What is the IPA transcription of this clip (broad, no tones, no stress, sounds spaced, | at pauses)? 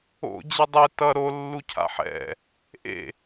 o̰ d͡ʑ ɛ dˤ e t ʌ ɾ o lː u cʰ a̰ ħ ɛ̰ | ʔ ḛ